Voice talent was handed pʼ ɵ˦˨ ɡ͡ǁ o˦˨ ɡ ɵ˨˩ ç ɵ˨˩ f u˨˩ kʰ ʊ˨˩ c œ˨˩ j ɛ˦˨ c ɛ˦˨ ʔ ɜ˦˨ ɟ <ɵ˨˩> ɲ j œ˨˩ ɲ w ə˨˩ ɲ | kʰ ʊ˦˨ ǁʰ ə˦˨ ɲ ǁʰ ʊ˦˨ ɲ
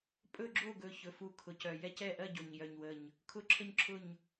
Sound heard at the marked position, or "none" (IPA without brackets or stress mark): o˨˩